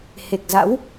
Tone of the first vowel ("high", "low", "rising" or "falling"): low